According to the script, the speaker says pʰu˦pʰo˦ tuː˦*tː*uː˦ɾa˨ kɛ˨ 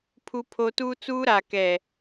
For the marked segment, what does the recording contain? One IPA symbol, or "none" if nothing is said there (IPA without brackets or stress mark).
t͡s